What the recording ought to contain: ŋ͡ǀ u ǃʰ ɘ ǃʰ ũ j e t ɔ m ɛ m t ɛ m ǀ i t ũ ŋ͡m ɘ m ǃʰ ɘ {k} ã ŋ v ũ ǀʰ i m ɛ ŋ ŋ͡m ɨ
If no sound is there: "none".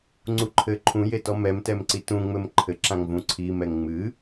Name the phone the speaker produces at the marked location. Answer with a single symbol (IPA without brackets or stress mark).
ǁ